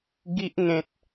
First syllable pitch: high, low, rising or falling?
high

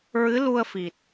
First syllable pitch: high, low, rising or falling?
rising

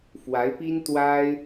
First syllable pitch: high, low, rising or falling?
rising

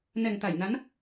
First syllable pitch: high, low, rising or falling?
low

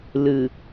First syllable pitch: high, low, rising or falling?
low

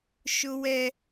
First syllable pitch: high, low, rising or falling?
high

